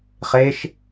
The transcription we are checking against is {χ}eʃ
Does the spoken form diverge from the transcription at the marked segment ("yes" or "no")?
no